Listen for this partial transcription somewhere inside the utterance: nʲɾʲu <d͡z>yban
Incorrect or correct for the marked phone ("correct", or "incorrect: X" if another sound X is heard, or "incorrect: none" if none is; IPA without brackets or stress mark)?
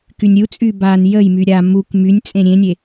incorrect: t͡sʼ